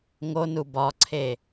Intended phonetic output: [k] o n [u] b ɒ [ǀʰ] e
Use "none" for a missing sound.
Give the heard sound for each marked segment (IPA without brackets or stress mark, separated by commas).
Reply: ŋ, u, ǀʰ